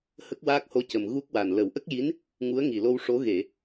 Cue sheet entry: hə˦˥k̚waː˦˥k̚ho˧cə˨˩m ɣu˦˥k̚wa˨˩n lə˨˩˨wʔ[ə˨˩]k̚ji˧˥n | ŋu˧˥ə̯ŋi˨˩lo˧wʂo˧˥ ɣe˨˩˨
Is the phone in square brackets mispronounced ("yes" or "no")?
yes